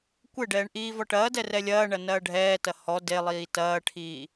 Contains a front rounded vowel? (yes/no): no